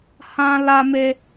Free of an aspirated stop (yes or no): yes